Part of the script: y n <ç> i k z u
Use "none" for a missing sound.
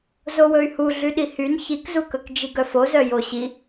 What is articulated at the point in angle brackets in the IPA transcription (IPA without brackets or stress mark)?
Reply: ç